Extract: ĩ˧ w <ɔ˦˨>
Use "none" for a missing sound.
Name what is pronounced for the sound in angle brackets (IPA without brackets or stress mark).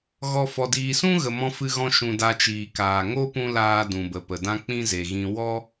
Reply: ɔ˦